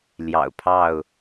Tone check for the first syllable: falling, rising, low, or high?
low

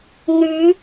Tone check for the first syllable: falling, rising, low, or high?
rising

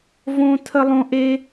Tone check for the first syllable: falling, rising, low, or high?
high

